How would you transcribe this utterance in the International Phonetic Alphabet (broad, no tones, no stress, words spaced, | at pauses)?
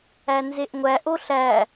ænzeʔŋʷæ ʔoɬæ